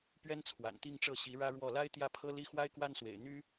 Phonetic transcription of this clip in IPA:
pɥɛ˥nt͡sʰwa̰˨˩nt̪i˥˧ŋʈ͡ʂɤ˥˩ ɕi˧˥ɻä˥ɻwɔ˥˩ la˥ɪ̯t̪jä˥˩ pʰɤ˥li˥ xwa˥ɪ̯kwa˥nswḛ˨˩ɪ̯ n̪y˥

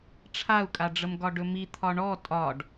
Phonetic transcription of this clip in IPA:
ʈ͡ʂʰau̯kʼaɖ͡ʐəm ɡɒɖɵmi t̪ʰɒɳɔ tʼɒɖ

